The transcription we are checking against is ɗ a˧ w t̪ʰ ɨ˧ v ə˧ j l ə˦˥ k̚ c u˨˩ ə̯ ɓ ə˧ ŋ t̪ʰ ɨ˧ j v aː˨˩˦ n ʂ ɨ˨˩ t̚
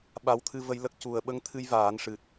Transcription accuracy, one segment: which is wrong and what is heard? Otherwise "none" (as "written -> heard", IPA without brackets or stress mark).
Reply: ɗ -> ɓ